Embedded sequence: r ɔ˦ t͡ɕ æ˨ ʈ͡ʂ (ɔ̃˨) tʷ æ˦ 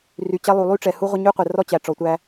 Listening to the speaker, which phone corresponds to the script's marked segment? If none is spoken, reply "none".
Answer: ɔ˨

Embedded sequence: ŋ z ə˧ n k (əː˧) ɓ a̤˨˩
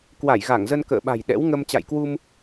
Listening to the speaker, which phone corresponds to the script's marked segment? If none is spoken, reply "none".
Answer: ə̰ː˧˨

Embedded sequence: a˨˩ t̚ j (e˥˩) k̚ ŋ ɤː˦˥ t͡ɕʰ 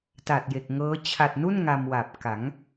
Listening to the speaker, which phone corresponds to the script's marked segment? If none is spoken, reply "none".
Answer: e˨˩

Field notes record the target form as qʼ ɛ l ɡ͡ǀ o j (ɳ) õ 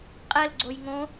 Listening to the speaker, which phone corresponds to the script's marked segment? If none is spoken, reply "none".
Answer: ŋ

